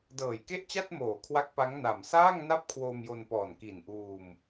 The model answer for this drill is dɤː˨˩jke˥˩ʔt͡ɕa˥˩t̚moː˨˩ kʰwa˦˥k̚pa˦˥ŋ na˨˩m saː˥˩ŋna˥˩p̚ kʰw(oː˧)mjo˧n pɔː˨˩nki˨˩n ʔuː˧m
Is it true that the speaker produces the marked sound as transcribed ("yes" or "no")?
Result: yes